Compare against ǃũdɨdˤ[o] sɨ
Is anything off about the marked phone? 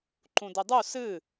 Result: yes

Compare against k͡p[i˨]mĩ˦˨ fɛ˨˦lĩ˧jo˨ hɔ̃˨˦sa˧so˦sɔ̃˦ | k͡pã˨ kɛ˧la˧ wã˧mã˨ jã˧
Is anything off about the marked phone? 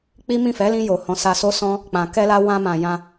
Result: yes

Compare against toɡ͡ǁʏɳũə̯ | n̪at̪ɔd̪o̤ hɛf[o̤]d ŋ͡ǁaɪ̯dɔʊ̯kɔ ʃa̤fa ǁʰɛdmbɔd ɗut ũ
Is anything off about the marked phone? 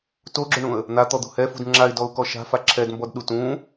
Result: yes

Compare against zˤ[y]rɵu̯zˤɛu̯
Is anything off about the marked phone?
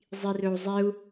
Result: yes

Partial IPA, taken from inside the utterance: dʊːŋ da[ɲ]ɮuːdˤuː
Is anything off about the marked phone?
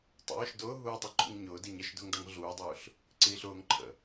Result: yes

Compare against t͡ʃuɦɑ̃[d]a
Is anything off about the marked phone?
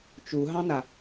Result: yes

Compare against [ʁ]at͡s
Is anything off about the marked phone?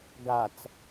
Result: yes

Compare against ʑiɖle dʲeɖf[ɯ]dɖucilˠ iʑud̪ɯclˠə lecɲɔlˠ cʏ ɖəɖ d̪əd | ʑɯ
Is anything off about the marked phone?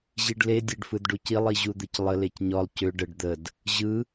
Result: no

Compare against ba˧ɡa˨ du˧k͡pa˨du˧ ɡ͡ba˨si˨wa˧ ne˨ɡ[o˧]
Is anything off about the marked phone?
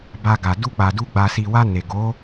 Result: yes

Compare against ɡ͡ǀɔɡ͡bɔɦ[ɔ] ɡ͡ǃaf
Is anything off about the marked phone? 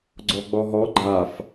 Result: no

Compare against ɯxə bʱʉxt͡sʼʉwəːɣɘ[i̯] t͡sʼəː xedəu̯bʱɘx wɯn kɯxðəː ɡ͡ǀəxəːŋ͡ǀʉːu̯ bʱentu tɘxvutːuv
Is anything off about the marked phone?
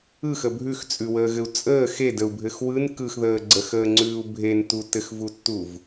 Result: yes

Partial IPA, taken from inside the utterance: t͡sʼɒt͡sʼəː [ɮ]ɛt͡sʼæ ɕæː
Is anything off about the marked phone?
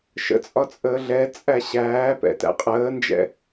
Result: no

